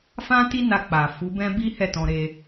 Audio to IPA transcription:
f ã˦ t i˦ n a˧ k͡p a˨ f u˨˦ b ɛ̃˦ b i˦ h ɛ˦˨ t ɔ̃˧ ɾ e˧

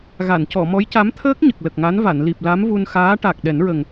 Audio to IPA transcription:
ɣ a˨˩˨ n c ɔ˨˩˨ m ɔ˧˥ j c a˧˥ m t̪ʰ əː˦˥ k̚ ɲ ə˨˩ k̚ l ə˨˩ k̚ ŋ a˧˥ n v a˨˩˨ n l i˨˩ p̚ l a˧˥ m v u˧ n x aː˧˥ ʈ a˨˩ k̚ ɗ ɛ˨˩˦ n ɹ ə˨˩ ŋ

